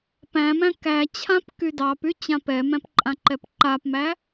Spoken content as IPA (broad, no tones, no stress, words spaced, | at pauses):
pæ̃ mæ̃kæt͡ɕʰãp kydɑpy t͡ɕãpɛmæ̃p ǃʼãǃɛpǃapmæ